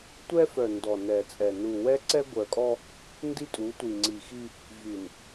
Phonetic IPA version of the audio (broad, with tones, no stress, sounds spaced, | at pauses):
tʷ ɛ˦ f œ˨ n d ɔ˨ n ɛ˨ t͡sʼ ɛ˨ n u˨ w ɛ˦ ǀ ɛ˦ ɡʷ œ˨ kʼ ɔ˦ | n d i˦ tʼ u˨˦ tʷ i˨ ŋ͡ǀ i˨ x i˦ | v y˨ n